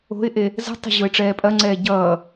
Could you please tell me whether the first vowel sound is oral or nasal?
oral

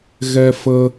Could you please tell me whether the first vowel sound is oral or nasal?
oral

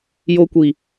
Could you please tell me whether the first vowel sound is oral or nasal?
oral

